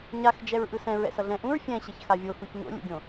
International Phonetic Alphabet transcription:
ɲ a x d͡ʒ ɛ ɹ ʔ ɯ s ɛ̃ ɹ ɛ̰ s ʌ ɮ ɛ̃ ʔ ũ ɹ fʲ ɛ̃ ɕ e ç x a vʲ o x u ç ɲ o̰ lʲ ṵ ɡʲ õ

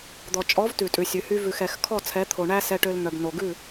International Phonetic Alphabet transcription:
d̪ ɔ˨ t͡ʃʼ ɔ˨˦ v t ʉ˨ tʼ ʉ˨ sʲ ʉ˨ h y˦ v ʉ˨ x ɛ˨ x kʰ ɔ˦˨ t͡sʰ ɛ˨˦ t̪ʰ o˨ ɳ æ˦ s ɛ˦ ʈ ø˦ l n̪ œ˨ b n o˨ ɡ ʉ˦˨

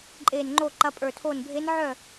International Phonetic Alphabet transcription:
ǃʼ eː˧˩ n ŋ͡ǃ oː˥˩ ǃ ɐ˧˥ pʼ ə˞˧˩ tʰ oː˥˩ n bʱ e˧˥ n ʕ œ˥˩

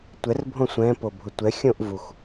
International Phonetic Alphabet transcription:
tʷ ɛ r bʱ õ sʷ ɛ̃ p o bʱ ʊ tʷ ɛ xʲ õ ʔ v u x

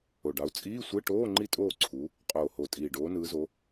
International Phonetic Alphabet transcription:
o˨˩ ɖ ɑ˨˦ u̯ t͡sʼ iː˧˥˧ sʷ e˧˥˧ ʈ oː˧˥˧ ŋ͡ǃ i˥˨ tʼ oː˥˨ ǀʰ u˨˦ | qʼ oː˨˩ h o˨˩ tʼ iː˨˩ ɖ oː˨˦ n ɯː˨˦ z o˨˦

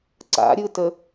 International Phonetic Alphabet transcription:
ǀ a̰ ɾʲ ɯ t ə

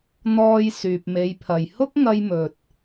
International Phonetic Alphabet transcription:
n̪ ɔː˨ j s yː˨ p̚ m e˨˧ j pʰ ɐ˨ j h ʊ˥ k̚ ŋ ɐ˧ j m ɵ˨ t̚

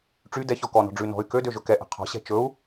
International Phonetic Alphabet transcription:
ʈ͡ʂ y d ɛ ç ɔ k ɔ n ɔ̤ ɖ͡ʐ ʉ n ɔ̤ y̯ k ø d ø ʒ ɵ k ɛ ʔ ɛ̤ qʰ ɔ̤ ɕ ɛ̤ t͡ʃ ɵ u̯

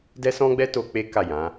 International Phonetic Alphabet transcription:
d ɛ˦ s ɔ̃˦ ɡ͡b ɛ˦ t o˧ k͡p e˦ k a˦˨ j ã˨˦

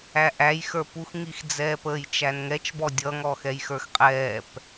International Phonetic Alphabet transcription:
æ ʔ æ j x ə˞ p u x ŋ i x d͡z ɛː p əː j t͡ʃ æ n ŋ ɛ t͡ʃ b ɔ dʲ ʌ ŋ ɔ x ɛ j x ə˞ x qʼ ɛː p

